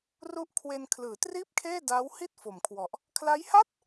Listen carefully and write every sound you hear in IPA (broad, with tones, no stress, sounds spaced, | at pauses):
r u˦˥ ʔ kʰ w e˧ n kʰ l ɯː˩˦ t r iː˥˩ p̚ kʰ eː˥˩ d aː˦˥ w h i˥˩ t̚ f o˩˦ m kʰ w ɔ˨˩ ʔ | kʰ l a˦˥ j h a˥˩ t̚